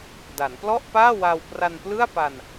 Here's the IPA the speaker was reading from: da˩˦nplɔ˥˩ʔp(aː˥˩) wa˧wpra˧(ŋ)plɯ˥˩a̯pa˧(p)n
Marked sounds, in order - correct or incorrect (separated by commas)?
correct, incorrect, incorrect